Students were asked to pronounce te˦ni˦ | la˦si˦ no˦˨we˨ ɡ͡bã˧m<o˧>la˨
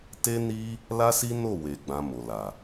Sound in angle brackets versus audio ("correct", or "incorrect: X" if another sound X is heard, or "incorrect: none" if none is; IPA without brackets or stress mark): incorrect: o˨